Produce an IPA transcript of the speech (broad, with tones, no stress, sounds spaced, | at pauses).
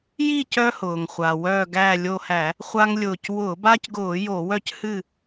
j i˥˨ c œ˦ h ʊː˩ ŋ χʷ a˩ w œː˧˩ ɡ æ˧˩ lʲ o˧˩ h æ˧˩˧ | χʷ a˦ ŋ lʲ ʊː˧˩ c w ʊː˧˩˧ b a˦ c ɡ ʊː˧˩˧ j o˧˩˧ w œ˥˨ c h ɨ˥˨